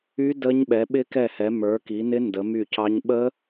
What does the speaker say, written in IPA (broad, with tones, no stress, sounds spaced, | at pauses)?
y˦˥ d ə˦˥ ɲ ɓ ɛ˨˦ ɓ ɪ˦˥ k ɛ˦˨ h ɛ˨˦ m ə˞˨˦ k i˨˦ n ɪ˦˥ n d ə˨˦ m y˦˨ c ɑ˦˥ ɲ ɓ ə˦˥